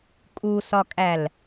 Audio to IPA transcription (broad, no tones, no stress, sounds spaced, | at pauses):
kʼ u s ɒ kʼ æ l